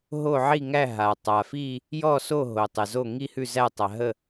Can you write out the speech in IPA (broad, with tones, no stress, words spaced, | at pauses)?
ɦo˥˨ʕi˥˨ŋæ˥˨ ɦa˩tˤa˩fi˥˨ | jɔ˥˨so˥˨ɦo˩ tˤɛ˩zo˥˨ ŋi˥˨hʉ˥˨ zæ˥˨tˤa˩ ɦə˥˨